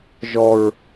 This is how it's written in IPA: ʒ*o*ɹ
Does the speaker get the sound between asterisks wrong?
yes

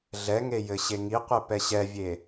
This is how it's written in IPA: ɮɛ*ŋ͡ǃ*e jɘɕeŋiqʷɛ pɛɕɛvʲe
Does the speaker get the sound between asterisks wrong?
yes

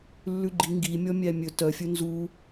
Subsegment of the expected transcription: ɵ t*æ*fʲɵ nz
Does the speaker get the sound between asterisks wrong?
yes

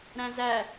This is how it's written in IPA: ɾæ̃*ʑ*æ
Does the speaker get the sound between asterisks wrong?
yes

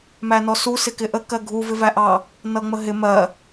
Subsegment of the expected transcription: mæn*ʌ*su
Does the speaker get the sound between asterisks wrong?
yes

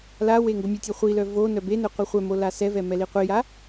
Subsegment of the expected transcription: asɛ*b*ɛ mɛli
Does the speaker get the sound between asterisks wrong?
yes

